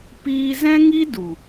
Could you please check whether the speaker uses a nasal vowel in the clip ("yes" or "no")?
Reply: yes